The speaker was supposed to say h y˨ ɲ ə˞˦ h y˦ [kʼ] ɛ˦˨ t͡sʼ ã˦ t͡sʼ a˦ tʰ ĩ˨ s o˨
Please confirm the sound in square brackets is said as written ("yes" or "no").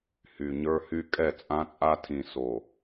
yes